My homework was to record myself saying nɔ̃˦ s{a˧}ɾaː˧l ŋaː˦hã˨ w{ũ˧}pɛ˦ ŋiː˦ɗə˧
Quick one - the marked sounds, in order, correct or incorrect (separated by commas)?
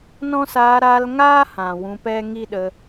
incorrect, correct